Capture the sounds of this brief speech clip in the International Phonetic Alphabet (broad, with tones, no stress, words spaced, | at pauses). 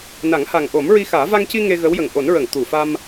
na˨˩˦ŋha˨˩ŋʔo˨˩˦m ɹi˧xaː˨˩˦ va˧ŋci˧ ŋe˧ ɣə˧˥wjə˨˩ŋ ʔo˨˩˦n ɹə˨˩˨ŋ t̪u˨˩˨fa˧m